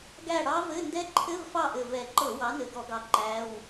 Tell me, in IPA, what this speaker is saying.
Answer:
ɡæ˦˨ ɽɑ˦˥vɘ˧˥˧ ndɛ˦˥ǃʰɘ˧˥˧vfɑ˦˨ʔɘ˨˩ vɛ˨˩ǃɤ˧˩˧ wɑ˨˥nɘ˨˩ɡɔ˧˩˧ɡɑ˨˩ ǃæ˧˥˧w

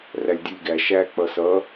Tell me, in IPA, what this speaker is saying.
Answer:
rælʲdʲulʲɡæ ʃæ k͡pʌsʌ

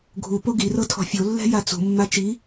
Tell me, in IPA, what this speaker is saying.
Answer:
ɡʱu poɡirɤ tʰɔ̤fʲolːɛ̤ jat͡sṳmːa t͡ʃi

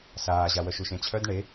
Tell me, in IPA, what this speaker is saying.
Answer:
saːʑawœʃ uʃẽt͡ɕʰœd ɳe

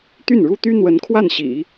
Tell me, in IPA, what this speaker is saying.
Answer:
t̪y˥˩nɻu˥t̪y˥ n̪wə˧˥nkʰwa˥˩nɕḭ˨˩˦

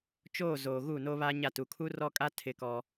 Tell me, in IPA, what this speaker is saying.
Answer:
t͡ʃoː˦˨zoː˨ ɣuː˦˨noː˦βaː˦ɲa˦˨ tu˨kʰu˦rɔ˦kʼa˦ tʰɪ˦kɔ˦

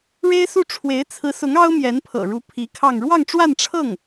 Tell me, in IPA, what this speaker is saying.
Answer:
ɻe˥ɪ̯su˥˩ ʈ͡ʂʰwe˧˥ɪ̯t͡sʰɹ̩˧˥sʊ˧˥ŋ ɑ˥ʊ̯mjɛ˧˥npʰɤ̰˨˩ɻu˧˥ pʰi˧˥kʰɑ˥˧ŋ ɻwɑ˥˧ŋʈ͡ʂwa˥˧n ʈ͡ʂʰɤ˥˩ŋ

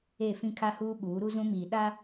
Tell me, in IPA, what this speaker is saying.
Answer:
e˦˨fĩ˦kʰa˦huː˦ ɓuː˨˦ɾu˦zũ˦miː˨ ɗa˦

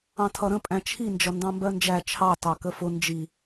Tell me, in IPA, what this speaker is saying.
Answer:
ɑ̃tʰʌɾə̃ pʼæ̃t͡ʃʰi nd͡ʒʌndɑ̃mbɜnd͡ʒæ t͡ʃʰɑ tɑkəfʊ nd͡ʒi

